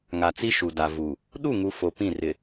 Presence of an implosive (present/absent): present